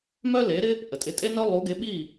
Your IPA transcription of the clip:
m œ˥ l e˩˥ ɾ ɪ˥ | ʔ ə˩ tʼ ɪ˧ tʼ e˥ n œ˥ lˠ u˩˥ ɡ e˩˥ ɓ iː˥˩

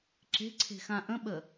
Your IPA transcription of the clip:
ǁ e̤ ǀʰ e̤ x ã ʔ ə̃ ɓ ə

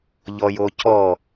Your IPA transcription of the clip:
ʎ ɔ j o cʰ ɔ

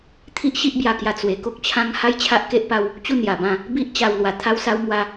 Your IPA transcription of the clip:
t̪ʰ i˦ ʔ ɕ i˦ ʔ b j a˧ k j a˧ t͡s w e˧ k o˦ k̚ t͡ɕʰ ã˦ ŋ h a˦ j t͡ɕʰ a˦ ʔ k e˦ ʔ p a˦ w | t͡ɕ u˥˧ n j a˧ b ã˥˧ | b i˦ ʔ t͡ɕ a˧ w l w a˧ t̪ʰ a˦ w s a˦ w m w a˦

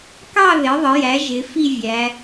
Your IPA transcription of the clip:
k ɑ˦˨ ð ɪ˩˥ ðˤ ə˩˥ j æ˩˥ ʒ ɪ˩˧ f i˦˨ vʲ æ˩˧

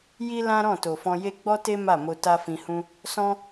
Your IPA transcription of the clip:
j i˦ l ã˦ ɾ ɔ̃˦˨ t o˨ f ɔ̃˧ j e˦ ɡ͡b ɔ˦ t e˦ m a˦˨ m o˧ t a˦ f ĩ˧ h ũ˦ | s ɔ̃˦

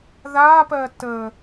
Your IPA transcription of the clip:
ð a p ɜ t ə

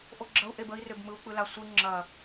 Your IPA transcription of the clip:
ʔ o ɡ͡ǁ ɐ u̯ ʔ e b ə i̯ r ø b m ɯ u̯ k͡p ɯ l a sʷ ɯ ŋ͡ǁ ɐ

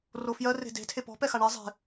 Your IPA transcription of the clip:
r o f j ɜ r e̤ d e̤ tʰ e p ɔ̤ p ɛ x a ɳ ɛ zˤ e̤

